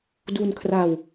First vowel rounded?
yes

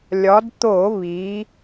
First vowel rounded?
yes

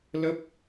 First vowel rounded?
no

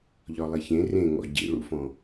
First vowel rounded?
yes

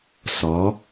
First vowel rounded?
yes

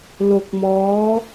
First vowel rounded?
yes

